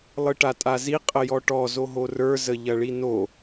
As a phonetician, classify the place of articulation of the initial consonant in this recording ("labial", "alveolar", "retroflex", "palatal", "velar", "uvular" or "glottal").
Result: alveolar